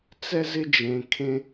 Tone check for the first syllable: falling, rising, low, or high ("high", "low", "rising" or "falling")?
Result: high